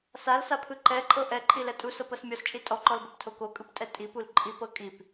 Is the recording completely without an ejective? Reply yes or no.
no